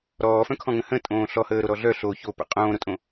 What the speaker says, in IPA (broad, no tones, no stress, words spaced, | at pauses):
ɾɔːfœ̃kʰɔ̃ŋə̃ hə̃ tʼõːɬɔhəːɾo ɾɔɮœ ɬo çopə̰ qʼõːɾotʼõ